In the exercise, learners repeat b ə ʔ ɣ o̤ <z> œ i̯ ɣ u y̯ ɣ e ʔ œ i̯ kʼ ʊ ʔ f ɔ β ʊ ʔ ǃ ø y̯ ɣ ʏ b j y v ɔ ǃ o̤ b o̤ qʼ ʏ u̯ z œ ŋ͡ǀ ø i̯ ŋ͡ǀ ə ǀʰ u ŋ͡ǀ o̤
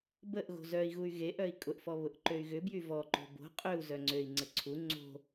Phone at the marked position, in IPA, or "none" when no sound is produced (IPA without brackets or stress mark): z